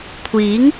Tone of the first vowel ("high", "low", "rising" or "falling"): rising